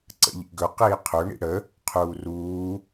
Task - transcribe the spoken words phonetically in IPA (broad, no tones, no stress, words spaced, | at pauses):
ǀə̰ʎḭɡɵ qiːqʰɵ ɳḭɽə | qʰuːruː